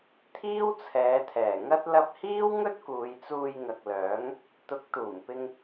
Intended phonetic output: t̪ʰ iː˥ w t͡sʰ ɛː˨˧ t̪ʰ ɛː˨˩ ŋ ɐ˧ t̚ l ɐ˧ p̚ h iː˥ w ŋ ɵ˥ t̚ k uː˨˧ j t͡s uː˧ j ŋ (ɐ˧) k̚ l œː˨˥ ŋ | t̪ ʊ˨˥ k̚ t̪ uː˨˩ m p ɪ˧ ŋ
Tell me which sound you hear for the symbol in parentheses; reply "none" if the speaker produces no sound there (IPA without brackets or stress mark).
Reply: ɐ˨